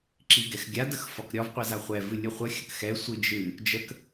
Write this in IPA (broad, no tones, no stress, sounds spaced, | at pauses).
ǁ i ɡ ɛ x ɡʲ a d ə x f ɒ k ɾʲ ɒ v qʷ ɨ z a χʷ ɛ v ɨ lʲ ɨ χʷ ə xʲ ə k x ɛ sʷ ɨ d͡ʒ ɨ | d͡ʒ ə k